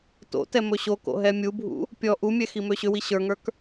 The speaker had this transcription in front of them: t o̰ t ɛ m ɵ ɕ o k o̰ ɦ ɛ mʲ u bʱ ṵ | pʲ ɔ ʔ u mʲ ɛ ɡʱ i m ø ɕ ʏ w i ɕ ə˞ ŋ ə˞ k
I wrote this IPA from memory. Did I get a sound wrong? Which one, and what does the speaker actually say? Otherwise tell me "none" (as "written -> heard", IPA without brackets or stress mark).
ɡʱ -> x